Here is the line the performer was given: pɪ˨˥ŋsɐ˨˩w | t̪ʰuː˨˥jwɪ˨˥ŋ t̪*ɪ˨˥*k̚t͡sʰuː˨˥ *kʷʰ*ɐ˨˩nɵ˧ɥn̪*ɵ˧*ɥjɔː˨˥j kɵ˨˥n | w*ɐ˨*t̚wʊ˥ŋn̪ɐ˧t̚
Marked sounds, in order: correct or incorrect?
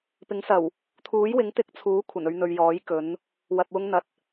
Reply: incorrect: ɪ˧, correct, incorrect: ɵ˨, correct

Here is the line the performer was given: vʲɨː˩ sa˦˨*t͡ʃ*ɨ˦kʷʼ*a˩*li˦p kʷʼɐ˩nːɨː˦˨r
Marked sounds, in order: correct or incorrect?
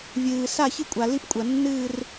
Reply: incorrect: ç, correct

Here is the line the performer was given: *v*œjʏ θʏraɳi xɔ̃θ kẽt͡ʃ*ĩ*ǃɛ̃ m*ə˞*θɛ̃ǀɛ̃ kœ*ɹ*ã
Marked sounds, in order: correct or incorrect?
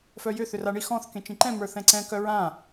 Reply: incorrect: f, correct, correct, correct

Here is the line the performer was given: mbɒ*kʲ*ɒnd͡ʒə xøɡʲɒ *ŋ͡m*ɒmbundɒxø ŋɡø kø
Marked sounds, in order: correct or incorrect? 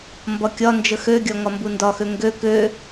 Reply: correct, incorrect: ŋ

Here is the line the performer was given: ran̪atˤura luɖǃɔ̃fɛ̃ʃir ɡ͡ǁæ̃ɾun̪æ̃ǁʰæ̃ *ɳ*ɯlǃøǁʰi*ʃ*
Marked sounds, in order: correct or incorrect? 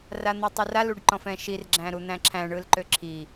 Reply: correct, incorrect: none

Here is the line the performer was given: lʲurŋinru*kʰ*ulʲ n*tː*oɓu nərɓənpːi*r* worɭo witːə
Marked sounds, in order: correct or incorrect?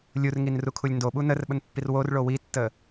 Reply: correct, incorrect: d, correct

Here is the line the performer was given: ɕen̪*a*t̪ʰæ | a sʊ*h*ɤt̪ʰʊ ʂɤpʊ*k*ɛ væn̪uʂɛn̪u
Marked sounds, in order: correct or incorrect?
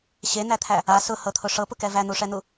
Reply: incorrect: æ, correct, correct

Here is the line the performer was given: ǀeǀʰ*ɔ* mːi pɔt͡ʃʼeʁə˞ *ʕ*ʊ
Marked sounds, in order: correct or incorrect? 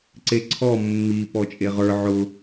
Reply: correct, correct

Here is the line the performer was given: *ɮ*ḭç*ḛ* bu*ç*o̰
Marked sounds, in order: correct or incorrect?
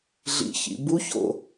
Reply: correct, incorrect: ḭ, correct

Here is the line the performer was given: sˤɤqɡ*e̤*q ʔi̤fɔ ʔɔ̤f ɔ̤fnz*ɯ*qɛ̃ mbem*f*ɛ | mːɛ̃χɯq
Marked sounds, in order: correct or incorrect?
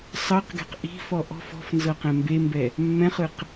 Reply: incorrect: ɛ̤, incorrect: ɤ, incorrect: b

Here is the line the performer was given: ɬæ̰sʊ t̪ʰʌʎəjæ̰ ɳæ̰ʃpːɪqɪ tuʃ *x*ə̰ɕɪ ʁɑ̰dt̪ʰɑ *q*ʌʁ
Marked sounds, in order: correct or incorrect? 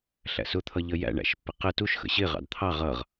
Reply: correct, incorrect: ʁ

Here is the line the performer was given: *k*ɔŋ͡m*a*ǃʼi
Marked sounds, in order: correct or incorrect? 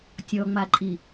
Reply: incorrect: tʲ, correct

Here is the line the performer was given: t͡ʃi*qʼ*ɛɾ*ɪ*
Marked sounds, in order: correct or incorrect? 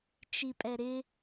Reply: incorrect: pʼ, correct

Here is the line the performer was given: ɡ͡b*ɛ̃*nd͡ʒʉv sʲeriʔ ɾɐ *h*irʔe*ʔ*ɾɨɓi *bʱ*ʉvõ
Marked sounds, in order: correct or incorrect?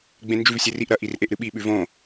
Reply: incorrect: ẽ, incorrect: ʔ, correct, incorrect: ɓ

